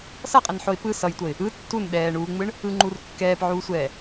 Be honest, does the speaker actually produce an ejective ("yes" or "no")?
yes